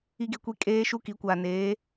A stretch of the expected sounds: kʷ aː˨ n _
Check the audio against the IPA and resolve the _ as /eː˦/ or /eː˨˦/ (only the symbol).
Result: eː˨˦